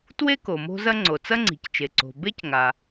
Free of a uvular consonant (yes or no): yes